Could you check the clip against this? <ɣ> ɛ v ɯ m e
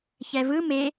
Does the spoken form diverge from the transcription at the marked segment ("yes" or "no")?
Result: yes